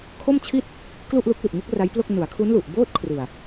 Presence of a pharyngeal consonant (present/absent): absent